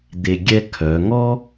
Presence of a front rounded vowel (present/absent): present